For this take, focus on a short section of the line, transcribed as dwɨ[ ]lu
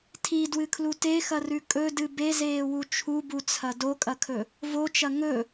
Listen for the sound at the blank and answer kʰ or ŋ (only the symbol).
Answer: kʰ